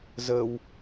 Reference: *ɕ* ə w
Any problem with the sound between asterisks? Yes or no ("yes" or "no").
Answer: yes